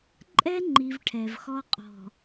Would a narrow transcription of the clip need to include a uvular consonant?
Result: yes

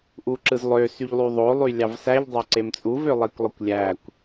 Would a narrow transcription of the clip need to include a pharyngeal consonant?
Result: no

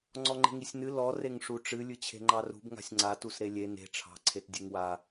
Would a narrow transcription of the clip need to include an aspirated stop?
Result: yes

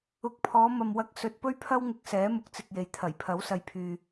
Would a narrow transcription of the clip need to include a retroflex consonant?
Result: no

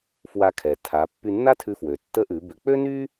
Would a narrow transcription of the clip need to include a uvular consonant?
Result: no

